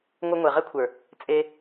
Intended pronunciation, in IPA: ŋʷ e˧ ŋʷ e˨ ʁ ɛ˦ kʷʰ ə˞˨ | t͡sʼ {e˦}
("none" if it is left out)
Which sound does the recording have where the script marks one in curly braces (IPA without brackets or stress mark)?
e˧